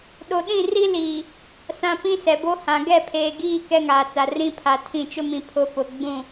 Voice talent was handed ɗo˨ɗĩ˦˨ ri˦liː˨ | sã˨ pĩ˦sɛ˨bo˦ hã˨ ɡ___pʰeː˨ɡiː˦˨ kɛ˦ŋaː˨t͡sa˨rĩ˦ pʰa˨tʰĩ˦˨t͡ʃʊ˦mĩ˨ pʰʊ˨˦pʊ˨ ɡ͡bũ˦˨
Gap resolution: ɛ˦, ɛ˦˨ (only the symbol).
ɛ˦˨